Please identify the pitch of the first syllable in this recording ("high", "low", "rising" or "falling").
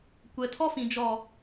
low